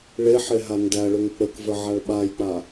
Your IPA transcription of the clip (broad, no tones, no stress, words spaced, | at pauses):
ɭeħe ɦandæɭʏŋ k͡pəkvə ʕaɭɓajk͡pa